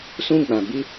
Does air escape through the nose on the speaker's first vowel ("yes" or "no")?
yes